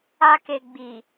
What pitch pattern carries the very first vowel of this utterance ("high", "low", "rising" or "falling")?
high